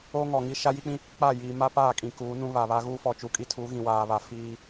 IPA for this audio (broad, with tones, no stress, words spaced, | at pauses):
o˦ŋɔ˨ŋi˦ ʃa˦ji˦k͡pĩ˦ | k͡pa˦˨jiː˨ ma˦paː˦˨kʼĩ˨ kuː˨˦nũ˦ βa˨βa˦ ɣuː˦fɔ˨t͡ʃu˨˦kʼi˦ tʰu˨˦ɣĩ˨waː˨βa˨ fiː˦